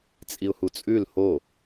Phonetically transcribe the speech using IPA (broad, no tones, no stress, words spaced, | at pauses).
t͡sʼiʊ̯hut͡sʼʉl ho